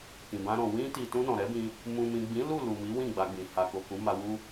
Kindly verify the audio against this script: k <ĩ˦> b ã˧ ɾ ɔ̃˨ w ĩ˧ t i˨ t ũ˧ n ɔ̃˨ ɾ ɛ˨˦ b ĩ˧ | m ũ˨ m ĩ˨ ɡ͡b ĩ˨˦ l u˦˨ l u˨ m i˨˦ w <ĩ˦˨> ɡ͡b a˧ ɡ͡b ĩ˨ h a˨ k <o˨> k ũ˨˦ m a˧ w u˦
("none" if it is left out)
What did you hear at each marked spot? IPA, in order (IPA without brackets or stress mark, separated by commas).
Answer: ĩ˨, ĩ˦˨, o˨